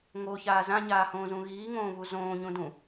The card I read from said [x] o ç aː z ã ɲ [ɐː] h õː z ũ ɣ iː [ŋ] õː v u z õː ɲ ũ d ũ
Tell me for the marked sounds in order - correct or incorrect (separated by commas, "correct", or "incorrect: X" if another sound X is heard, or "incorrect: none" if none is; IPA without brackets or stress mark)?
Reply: incorrect: ŋ, incorrect: aː, correct